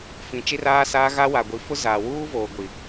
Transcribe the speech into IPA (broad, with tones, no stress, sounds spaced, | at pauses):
f ĩ˨ t͡ʃ i˦ r aː˦ s aː˦ ɣ a˦ w a˨ ɡʷ i˨˦ f ʊ˦ z aː˨ w uː˦ v oː˨ ɡʷ i˨